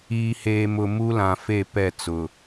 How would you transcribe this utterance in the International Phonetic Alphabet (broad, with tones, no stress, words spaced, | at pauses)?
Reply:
iː˨heː˨mʊ˨ mu˦lã˨ fe˦˨pɛ˦˨t͡sʊ˨